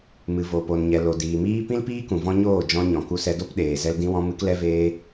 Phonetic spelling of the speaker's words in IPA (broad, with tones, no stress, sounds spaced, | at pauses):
m ɨ˨ v o˨ p o˨ n ɲ ɛ˨ l o˨ d iː˨ m iː˦ p ĩ˦ l p iː˦ k ũ˨ v ɔ̃˧ ɲ oː˦˨ d͡ʒ ɔ̃˧ ɲ ɔ̃˨ k u˧ s ɛ˧ d o˦ p ɗ eː˨ z ɛ˧ l d ĩ˧ w ɔ̃˧ m ɨ˧ k l ɛ˧ v eː˧